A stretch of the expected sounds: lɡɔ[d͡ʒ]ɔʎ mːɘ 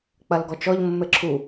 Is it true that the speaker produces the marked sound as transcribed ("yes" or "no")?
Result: no